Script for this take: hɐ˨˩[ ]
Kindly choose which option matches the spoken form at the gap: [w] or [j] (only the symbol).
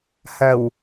w